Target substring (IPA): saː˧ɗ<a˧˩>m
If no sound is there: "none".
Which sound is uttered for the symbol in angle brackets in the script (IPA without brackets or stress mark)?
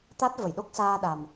a˨˩